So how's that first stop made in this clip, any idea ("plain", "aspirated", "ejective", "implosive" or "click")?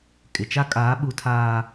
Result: ejective